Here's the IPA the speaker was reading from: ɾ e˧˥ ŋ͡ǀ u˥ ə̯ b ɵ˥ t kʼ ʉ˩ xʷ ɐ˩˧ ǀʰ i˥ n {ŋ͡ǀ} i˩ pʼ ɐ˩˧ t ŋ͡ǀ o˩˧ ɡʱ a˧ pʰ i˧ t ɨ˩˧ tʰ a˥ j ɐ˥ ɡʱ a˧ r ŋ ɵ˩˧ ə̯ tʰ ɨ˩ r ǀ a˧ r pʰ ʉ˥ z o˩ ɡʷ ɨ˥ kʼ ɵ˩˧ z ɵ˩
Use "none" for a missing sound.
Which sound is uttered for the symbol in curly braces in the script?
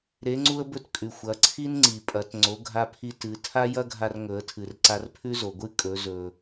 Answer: ŋ͡ǀ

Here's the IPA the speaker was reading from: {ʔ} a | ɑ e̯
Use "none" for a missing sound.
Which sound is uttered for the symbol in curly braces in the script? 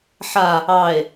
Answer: ħ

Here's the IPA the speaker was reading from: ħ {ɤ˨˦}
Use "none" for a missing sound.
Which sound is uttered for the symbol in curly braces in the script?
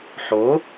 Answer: o˨˦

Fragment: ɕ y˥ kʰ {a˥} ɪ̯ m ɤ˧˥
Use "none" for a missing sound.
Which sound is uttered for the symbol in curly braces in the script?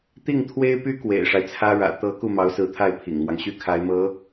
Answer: a˧˥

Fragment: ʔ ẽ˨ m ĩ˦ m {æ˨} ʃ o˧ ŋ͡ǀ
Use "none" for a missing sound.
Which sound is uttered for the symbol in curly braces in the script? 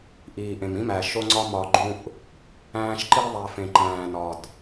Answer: æ˨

